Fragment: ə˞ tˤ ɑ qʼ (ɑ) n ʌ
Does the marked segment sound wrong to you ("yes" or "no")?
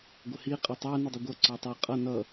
yes